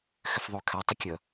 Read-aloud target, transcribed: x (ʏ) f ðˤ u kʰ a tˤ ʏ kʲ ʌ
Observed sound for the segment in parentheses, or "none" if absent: ʏ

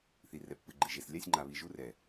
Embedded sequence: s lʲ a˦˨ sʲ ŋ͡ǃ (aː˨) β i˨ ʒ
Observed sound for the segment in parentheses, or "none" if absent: a˨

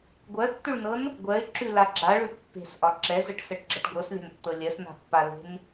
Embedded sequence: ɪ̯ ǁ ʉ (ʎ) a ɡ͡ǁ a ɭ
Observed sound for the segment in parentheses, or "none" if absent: l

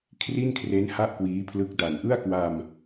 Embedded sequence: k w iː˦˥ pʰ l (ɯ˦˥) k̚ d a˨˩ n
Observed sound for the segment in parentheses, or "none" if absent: ɯ˦˥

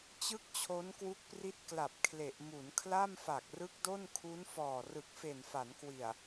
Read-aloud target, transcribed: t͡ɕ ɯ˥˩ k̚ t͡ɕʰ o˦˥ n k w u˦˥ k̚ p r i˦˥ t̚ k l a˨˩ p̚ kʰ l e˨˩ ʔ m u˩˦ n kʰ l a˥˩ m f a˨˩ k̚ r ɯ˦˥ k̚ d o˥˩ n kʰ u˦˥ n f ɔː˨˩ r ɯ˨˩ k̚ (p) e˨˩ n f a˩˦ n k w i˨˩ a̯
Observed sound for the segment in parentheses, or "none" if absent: f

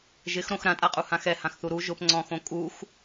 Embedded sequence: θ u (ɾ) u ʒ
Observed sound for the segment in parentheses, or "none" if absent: ɾ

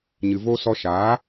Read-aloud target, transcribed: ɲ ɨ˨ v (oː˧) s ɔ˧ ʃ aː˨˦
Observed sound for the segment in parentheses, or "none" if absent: o˧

